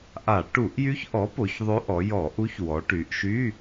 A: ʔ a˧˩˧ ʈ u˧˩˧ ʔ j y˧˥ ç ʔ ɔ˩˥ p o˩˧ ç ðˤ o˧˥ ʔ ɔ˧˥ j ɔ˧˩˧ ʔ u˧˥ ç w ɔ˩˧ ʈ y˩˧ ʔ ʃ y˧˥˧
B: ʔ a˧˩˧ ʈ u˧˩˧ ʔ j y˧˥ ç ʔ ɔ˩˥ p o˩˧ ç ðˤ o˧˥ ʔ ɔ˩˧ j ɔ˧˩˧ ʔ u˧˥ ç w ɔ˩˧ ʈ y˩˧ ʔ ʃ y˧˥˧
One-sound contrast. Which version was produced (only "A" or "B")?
B